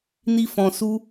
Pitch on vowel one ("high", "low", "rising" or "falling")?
high